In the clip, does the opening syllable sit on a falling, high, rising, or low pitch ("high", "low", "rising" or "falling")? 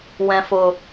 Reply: low